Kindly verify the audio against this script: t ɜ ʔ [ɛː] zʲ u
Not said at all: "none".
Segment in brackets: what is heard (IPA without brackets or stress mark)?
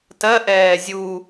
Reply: ɛː